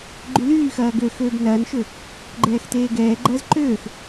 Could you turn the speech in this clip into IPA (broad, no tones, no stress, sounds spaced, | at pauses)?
ɡ͡ǃ y l yː x ɐː ɡ ø x øː b n ɐː n ʃ ø | ɡ͡ǃ ɛː x t eː ɡ ɛː ɡ͡ǃ ɐː z ǃ øː x